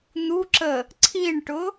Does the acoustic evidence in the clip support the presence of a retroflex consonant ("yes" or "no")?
yes